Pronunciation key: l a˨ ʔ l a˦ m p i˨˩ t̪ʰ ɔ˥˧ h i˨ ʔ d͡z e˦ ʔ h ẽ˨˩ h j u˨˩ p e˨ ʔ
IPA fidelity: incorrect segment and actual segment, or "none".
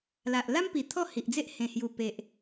none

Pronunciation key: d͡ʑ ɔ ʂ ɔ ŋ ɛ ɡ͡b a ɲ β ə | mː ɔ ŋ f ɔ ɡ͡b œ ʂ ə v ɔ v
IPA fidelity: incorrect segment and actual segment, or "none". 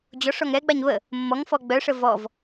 none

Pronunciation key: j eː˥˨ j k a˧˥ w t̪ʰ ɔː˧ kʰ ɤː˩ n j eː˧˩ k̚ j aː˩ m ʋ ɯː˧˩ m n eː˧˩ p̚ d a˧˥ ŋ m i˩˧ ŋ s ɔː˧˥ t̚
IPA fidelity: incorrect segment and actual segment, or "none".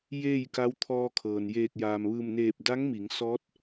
none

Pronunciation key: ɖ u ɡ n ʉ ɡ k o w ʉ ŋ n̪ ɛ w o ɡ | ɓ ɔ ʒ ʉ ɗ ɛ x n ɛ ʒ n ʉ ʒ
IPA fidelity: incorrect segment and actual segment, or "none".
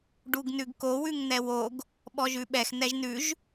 ɗ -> ɓ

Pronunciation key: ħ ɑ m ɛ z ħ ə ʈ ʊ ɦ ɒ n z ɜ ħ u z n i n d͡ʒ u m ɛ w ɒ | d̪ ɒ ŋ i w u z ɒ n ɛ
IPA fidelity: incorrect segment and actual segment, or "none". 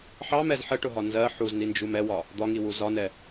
none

